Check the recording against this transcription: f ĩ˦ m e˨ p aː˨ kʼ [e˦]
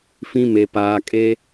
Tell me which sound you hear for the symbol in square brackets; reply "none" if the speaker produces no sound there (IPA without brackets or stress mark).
e˦